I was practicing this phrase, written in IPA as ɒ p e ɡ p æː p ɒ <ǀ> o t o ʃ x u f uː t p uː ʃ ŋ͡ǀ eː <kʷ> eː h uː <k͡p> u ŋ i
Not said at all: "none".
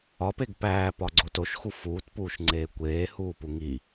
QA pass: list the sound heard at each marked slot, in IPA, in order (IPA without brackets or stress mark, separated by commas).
ɡ͡ǀ, kʷ, p